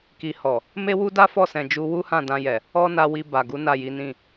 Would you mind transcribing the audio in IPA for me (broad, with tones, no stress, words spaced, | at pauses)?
ki˨hɔ˨ | me˦wu˦da˦ fɔ˦˨sɛ̃˨d͡ʒu˧ wu˦hã˦˨dã˧jɛ˨ | ɔ˦na˧ wi˧ ba˨ɡu˨˦ na˦˨ji˨˦nĩ˦˨